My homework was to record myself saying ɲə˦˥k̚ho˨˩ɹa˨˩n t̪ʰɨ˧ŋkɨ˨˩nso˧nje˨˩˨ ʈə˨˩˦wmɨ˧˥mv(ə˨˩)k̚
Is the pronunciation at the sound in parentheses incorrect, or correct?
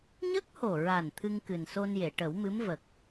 correct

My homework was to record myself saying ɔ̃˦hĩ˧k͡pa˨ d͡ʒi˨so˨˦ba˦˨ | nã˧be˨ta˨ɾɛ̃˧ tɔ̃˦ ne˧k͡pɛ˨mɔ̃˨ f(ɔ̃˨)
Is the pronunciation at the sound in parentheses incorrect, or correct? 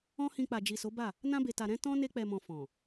correct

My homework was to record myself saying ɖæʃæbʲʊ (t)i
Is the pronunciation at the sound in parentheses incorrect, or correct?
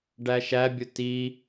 correct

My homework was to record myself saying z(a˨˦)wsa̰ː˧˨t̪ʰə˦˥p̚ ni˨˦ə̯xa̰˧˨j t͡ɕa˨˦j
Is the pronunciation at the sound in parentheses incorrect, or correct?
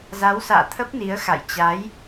correct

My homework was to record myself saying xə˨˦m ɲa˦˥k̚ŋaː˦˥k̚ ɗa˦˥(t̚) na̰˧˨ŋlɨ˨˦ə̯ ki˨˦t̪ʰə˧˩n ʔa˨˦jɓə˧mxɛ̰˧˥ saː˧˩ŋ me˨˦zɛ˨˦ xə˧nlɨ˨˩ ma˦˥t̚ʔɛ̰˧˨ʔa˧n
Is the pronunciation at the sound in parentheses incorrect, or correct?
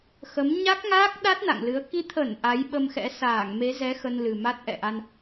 correct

